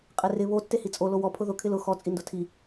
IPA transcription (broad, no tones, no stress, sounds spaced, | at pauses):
qʼ e r ɪ β o tː e h i t͡sʼ o l o w ɔ pʰ ʊ ð ʊ kʰ ɪ l ʊ x ɔ t͡sʼ i n d ʊ tʰ i